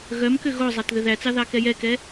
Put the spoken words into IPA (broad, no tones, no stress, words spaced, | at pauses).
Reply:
ɣœmkʏ ɣozˤat ðʏðæt͡sɑ ðɑkɛjɛkɛ